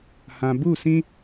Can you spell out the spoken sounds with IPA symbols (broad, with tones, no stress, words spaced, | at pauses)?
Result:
hã˨bu˦˨sĩ˦